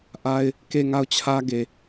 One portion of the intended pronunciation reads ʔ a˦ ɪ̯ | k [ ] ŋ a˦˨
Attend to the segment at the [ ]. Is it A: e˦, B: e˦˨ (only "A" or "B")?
B